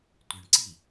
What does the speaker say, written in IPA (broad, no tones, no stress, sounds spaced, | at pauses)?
tʷ ɘ ɳ ǀ i